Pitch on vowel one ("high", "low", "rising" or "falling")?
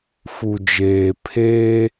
low